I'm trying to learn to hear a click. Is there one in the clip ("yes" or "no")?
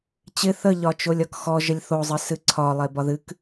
yes